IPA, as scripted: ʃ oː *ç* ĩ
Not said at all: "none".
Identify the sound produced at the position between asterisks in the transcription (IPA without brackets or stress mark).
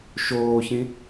ç